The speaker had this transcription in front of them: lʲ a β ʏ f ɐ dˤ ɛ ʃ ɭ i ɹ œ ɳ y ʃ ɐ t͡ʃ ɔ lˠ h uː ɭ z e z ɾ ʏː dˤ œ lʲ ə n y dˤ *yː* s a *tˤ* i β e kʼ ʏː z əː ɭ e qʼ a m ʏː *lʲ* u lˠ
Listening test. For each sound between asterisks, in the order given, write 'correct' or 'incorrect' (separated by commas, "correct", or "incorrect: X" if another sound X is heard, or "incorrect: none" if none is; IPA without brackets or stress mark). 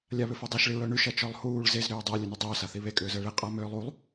incorrect: ʏː, incorrect: θ, incorrect: lˠ